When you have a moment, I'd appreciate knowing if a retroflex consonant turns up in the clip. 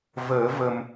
no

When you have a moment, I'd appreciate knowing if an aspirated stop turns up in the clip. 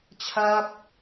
yes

